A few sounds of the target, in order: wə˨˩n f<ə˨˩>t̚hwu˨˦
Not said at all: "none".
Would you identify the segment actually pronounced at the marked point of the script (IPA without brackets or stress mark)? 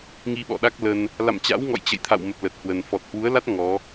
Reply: ɔ˨˩